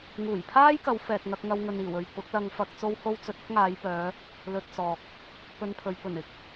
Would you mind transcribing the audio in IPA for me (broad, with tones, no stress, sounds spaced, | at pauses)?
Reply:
ŋ uː˨˩ j pʰ aː˥ j k ɐ˨˧ w f ɛː˨ k̚ ŋ ɐ˧ k̚ ŋ ɐ˧ w ŋ ɵ˨ n iː˨˩ w ɵ˨ ɥ p ʊ˨˥ k̚ l ɐ˧ ŋ f ɐ˧ k̚ t͡s o˧ w h o˧ w t͡s ɵ˨ t̚ ɐ˥ k̚ ŋ aː˨˧ j p œː˨˧ | l ɵ˧ t̚ t͡s ɔː˨ k̚ | p ɵ˧ n pʰ ɵ˨ ɥ p ɵ˨˩ n ɪ˨˥ k̚